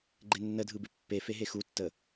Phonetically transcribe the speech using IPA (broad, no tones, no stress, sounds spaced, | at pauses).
ɡ͡ǃ e nː ə dʱ ɯ b ɪ pː e f e ɦ e x u tː ə